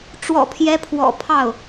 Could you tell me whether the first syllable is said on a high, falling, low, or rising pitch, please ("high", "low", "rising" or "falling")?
low